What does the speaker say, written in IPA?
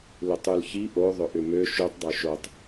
lʏtˤʉlçi ʔo ðˤʏʔʏmø ʃʉtˤ dˤʉʃotˤ

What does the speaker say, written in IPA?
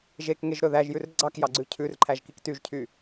ʒek ŋeʒɾɵðæʒjʉr ɡ͡ǀɑkjɑɡ͡ǀʉ cʰʉr ǃʰæʒkiktyʒcʰy

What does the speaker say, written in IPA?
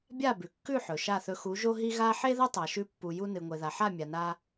bʲa˦˨bʉ˨kːʉ˦˨ ħɵ˨ʃa˦˨θɵ˧ xu˨˦ʒo˦ ɦi˦ ɣa˦ ħe˦ðɐ˦ tˤa˨ʃʉ˧pːu˨ ju˧nɨ˨ŋʷe˨ða˨ ħa˦˨mʲa˨na˧

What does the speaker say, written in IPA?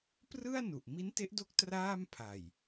prɯ˥˩a̯nu˨˩ʔ mi˦˥nte˦˥ʔdo˦˥k̚ traː˥˩m pʰa˨˩j

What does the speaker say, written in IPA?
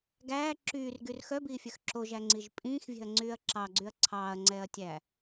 ɡæː ǁyːrɡyr xœbiːfʲœx ǁoʒæŋ͡ǀiʒ pʼĩːxvʲɛ̤ɐ̯ŋ͡ǀyːɐ̯ ǁɑɡ͡ǀyɐ̯ ǀʰɑːɐ̯ŋ͡ǀɛːɐ̯tʲæː

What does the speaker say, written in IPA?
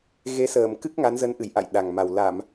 ɣe˨˦səː˧˩mkɨ˦˥k̚ ŋa˨˦nzə˨˦nʔɨ˧˩j ʔa̰˧˨j ɗa˨˩ŋma˨˩w la˧˩˨m

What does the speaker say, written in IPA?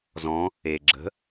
zɔ̃ | e ɡ͡ǁə̤

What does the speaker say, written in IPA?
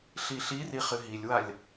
ɬiɬiri χɨɦilʲwalʲ

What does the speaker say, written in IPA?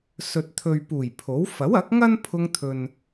sɵ˨t̚t̪ʰɵ˨ɥpuː˨˩j pʰo˨˥w fɐ˨˥wɐ˨˥k̚ŋɐ˥n pʰʊ˧ŋt̪ʰɵ˨n

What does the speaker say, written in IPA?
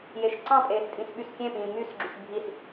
jeʃǀɑ̃pʼeːs tʼĩsɓyskʲẽpĩː mysɡ͡ǁyʃ bʱis

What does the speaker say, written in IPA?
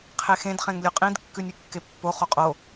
qʰexẽd χẽŋlʲʉqʼĩd kːʉnʲʉkːepːo χoqʼo

